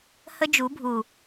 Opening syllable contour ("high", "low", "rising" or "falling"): high